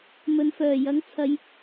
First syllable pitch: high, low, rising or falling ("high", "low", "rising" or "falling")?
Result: low